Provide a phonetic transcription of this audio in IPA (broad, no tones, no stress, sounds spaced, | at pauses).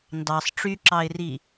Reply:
n d ɑ sˤ ʈ͡ʂ y ǁ ɑ ɪ̯ r i